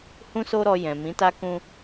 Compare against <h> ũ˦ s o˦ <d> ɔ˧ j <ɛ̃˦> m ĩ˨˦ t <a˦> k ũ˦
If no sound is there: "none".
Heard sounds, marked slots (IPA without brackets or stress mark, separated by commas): h, ɾ, ɛ̃˨, a˦